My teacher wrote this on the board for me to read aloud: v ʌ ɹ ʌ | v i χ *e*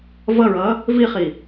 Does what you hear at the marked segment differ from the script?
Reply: yes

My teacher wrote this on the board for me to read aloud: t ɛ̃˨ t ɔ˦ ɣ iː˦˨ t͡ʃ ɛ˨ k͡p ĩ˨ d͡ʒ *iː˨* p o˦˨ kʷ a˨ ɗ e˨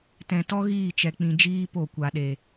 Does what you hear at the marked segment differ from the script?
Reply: yes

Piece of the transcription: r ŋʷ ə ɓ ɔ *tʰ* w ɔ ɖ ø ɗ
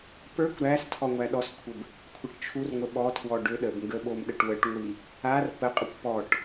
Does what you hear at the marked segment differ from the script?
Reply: no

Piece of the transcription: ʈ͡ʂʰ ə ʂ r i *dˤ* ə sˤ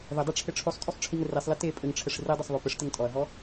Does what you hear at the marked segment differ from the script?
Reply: no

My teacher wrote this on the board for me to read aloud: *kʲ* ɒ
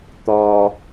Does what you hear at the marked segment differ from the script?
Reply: yes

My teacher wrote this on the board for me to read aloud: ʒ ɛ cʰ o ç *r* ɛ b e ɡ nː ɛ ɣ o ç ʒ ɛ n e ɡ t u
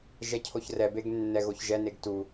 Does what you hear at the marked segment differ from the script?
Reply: no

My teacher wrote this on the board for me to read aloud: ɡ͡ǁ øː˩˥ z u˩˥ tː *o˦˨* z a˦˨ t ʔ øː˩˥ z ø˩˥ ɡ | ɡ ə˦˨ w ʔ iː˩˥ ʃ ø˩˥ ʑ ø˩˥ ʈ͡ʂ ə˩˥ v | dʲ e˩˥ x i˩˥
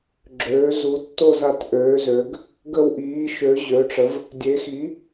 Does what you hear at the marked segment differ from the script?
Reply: no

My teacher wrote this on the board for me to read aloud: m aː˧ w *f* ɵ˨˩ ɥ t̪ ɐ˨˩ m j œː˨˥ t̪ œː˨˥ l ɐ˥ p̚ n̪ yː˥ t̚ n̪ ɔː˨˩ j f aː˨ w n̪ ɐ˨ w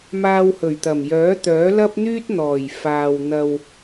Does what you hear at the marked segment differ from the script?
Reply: yes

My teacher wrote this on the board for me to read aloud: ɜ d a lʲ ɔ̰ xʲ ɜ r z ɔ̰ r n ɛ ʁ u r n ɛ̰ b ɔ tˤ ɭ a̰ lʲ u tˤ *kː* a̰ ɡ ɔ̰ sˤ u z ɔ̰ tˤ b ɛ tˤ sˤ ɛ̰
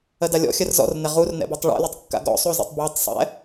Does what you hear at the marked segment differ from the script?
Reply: no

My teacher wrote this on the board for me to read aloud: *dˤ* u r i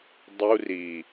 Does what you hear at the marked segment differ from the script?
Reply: no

